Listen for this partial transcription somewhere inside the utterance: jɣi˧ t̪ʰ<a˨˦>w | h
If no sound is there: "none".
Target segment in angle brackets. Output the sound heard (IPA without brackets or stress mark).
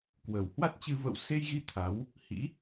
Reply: a˨˦